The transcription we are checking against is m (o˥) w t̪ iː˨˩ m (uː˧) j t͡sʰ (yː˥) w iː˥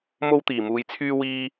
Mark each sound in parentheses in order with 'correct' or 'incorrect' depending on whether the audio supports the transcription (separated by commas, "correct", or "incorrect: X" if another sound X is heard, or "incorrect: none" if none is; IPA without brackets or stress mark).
correct, correct, correct